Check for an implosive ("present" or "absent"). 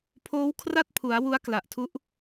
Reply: absent